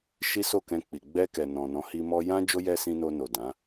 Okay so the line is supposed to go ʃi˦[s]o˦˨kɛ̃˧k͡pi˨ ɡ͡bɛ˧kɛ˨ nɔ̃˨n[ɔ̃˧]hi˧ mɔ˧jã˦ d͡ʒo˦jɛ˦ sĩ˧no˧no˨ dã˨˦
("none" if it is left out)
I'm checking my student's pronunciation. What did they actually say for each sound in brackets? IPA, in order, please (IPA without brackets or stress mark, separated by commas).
s, ɔ̃˨˦